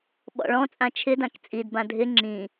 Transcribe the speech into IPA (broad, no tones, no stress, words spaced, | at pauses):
ɓɔ̰ɭɔ̃t͡sʼã t͡ʃʰɪdãk t͡sʼidbã dʱɪ ŋ͡ǁĩ